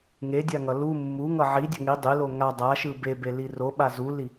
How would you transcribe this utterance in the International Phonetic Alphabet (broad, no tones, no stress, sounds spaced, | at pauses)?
ŋ e dʲ a ŋ ʌ l u mː u ŋ ʌ ʕ i dʲ ʌ ŋ i dˤ e l o ŋ a dˤ a ʃ ɯ b e b e l i r o ɓ a z u l i